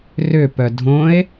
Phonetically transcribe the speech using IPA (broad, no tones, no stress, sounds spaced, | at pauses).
r ʏ p œ dʱ õ e̯